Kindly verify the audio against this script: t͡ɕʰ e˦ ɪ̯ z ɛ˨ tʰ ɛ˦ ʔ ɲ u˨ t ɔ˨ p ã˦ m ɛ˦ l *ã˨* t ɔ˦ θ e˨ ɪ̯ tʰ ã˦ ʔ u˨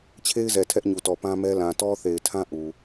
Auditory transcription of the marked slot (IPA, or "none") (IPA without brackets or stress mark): ã˨